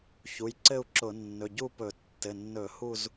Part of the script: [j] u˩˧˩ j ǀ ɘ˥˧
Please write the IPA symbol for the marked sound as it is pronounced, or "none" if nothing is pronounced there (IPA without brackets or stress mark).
ç